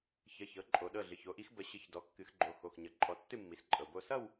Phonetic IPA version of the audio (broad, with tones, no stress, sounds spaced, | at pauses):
ç ə˩˧˩ ç ɤ˩˥ ǃʼ o˨˩˦ ɗ ɤ˩˧˩ ɮ ɨ˩˧˩ ç o˩˥ ʔ i˩˥ x b ə˨˩˦ ɕ ɨ˨˩˦ ç d ɔ˩˧˩ kː ɨ˨˩˦ x ɡ͡ǃ o˩˧˩ x o˩˧˩ x ɲ ʌ˩˥ ǃʼ ɔ˨˩˦ tː ɨ˥˧ mː i˩˥ s ǃʼ ɤ˩˧˩ b o˥˧ s ʌ˥˧ w